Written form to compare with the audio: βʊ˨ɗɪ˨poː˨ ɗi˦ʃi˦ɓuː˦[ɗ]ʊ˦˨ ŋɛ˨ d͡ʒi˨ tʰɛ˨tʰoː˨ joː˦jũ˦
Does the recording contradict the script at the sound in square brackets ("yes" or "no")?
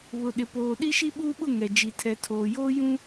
yes